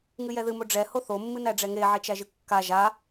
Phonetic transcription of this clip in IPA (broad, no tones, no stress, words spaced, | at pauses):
ŋɨjɛðɨ moɖ͡ʐɛ hoθo mːɨnæɖ͡ʐɛŋe ʕet͡ʃæʒɨkːa ʒa